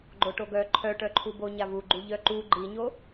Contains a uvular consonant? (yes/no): no